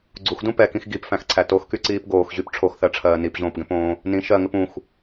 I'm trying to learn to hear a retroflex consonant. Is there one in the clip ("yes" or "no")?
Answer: yes